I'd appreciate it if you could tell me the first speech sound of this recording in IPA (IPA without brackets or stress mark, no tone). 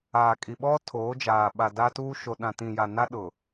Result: aː